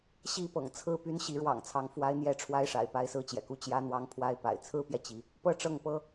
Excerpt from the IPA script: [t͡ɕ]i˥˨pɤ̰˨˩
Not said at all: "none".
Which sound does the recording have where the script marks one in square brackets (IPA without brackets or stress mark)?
ɕ